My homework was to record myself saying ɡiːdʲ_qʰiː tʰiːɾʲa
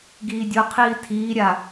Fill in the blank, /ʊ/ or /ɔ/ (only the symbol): ʊ